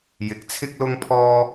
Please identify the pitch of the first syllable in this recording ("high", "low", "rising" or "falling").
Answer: rising